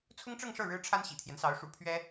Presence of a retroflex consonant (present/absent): present